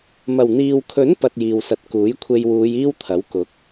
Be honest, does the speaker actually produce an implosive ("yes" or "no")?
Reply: no